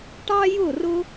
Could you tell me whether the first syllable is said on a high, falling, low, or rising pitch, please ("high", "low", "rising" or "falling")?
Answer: high